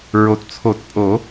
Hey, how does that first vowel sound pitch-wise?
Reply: low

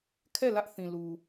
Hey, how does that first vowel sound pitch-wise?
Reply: falling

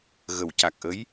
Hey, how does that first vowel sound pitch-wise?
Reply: low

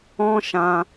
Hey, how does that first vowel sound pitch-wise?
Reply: high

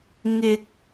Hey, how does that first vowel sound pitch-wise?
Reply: low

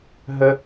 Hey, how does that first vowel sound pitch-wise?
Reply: high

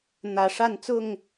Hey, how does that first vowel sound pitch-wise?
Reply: low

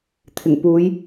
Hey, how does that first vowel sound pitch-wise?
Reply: low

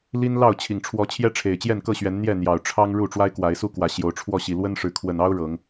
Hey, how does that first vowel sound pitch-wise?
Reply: high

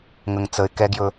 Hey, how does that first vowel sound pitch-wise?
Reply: low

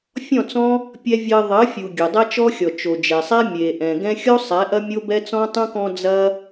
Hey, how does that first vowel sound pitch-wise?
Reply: falling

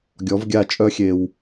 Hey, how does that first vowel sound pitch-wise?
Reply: rising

